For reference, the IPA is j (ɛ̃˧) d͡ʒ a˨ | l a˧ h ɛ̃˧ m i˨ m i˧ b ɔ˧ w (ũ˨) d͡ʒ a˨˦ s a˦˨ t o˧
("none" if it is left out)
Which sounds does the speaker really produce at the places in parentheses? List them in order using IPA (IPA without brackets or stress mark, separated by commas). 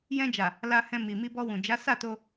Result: ɛ̃˧, ũ˨